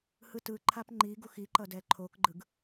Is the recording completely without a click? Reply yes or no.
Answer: no